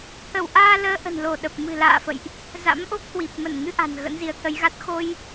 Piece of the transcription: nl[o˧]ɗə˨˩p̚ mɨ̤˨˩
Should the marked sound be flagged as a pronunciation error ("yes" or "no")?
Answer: yes